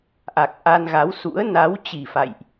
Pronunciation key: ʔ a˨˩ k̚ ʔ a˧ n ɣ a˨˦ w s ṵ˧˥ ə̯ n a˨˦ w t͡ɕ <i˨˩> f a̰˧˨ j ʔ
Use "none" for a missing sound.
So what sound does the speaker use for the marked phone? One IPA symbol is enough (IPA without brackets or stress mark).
i˨˩